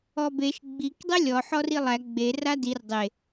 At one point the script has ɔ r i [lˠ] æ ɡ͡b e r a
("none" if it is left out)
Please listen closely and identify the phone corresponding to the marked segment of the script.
lˠ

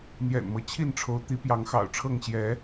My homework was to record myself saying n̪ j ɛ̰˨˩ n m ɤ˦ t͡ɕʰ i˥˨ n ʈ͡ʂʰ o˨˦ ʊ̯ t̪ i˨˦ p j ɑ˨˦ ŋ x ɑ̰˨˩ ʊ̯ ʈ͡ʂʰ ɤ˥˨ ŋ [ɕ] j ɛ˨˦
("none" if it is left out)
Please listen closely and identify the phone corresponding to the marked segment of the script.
ɕ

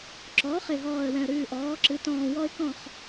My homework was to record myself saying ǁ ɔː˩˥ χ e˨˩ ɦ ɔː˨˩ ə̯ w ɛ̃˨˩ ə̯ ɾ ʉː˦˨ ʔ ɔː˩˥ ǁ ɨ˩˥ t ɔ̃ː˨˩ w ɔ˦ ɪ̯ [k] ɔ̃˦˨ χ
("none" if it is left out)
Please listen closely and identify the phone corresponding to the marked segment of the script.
k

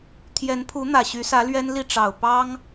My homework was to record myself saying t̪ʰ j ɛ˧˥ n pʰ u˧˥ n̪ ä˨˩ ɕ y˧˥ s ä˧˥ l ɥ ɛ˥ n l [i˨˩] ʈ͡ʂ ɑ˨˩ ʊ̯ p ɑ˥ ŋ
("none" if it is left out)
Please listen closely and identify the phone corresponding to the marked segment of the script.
i˥˩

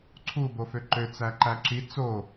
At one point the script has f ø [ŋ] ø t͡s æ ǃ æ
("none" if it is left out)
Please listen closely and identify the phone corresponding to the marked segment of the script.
ǃ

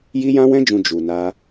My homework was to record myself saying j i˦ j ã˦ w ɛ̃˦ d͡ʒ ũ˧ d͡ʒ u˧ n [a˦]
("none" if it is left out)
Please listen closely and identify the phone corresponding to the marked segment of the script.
a˦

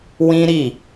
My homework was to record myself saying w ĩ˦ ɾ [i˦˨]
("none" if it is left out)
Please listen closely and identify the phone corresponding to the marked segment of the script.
i˦˨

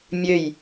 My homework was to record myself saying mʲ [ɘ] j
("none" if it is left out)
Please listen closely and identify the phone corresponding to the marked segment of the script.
ø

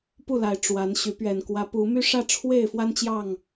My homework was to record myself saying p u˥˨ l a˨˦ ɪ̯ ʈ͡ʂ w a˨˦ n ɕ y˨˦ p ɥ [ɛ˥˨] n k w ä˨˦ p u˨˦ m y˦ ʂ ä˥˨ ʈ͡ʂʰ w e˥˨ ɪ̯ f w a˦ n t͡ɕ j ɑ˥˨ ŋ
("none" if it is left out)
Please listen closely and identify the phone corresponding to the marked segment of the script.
ɛ˨˩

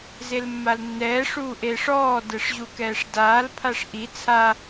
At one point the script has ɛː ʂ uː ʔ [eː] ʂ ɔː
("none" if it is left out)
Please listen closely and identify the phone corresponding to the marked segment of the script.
eː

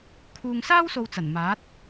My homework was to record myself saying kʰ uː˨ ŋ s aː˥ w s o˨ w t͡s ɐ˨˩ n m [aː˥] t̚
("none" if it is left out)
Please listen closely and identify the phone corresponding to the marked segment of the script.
aː˨˥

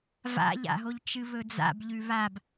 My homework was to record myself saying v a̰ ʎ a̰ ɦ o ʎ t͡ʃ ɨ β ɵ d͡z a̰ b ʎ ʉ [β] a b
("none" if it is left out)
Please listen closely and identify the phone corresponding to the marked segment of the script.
β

